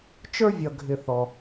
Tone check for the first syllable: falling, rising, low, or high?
high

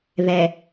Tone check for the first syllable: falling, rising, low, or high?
low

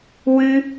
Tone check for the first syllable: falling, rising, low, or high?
high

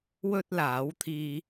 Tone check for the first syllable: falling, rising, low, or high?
high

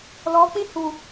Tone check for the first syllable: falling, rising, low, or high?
rising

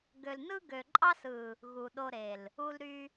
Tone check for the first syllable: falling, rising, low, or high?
low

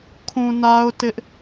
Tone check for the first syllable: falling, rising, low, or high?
low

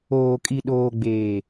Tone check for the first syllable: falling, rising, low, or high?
low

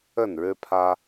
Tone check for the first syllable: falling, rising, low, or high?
falling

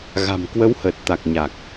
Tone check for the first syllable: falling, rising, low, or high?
low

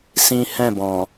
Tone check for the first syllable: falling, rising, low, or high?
high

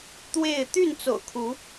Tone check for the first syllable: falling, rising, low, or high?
falling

